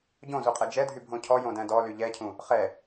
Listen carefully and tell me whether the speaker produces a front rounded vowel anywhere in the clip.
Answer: yes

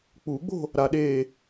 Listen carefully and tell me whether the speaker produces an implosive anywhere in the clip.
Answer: yes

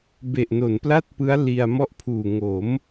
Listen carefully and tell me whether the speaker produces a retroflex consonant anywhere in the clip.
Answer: no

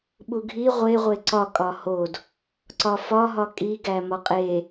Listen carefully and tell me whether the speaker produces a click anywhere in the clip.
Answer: yes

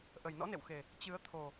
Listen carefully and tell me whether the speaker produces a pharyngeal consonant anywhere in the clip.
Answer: no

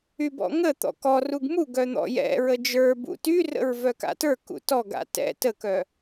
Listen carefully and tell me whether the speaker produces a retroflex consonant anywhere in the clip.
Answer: no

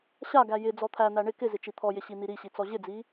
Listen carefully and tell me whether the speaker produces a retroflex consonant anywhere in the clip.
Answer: yes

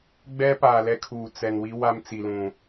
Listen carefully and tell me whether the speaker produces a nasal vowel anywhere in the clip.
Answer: yes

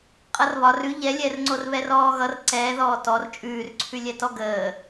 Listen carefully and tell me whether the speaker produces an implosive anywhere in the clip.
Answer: no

